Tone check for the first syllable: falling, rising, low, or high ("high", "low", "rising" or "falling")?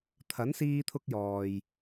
rising